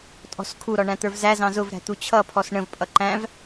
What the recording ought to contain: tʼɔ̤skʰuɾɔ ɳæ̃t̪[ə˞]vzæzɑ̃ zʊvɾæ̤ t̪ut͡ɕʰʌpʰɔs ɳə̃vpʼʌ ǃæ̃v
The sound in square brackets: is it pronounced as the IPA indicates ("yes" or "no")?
yes